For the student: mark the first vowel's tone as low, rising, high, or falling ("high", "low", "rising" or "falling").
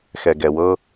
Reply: low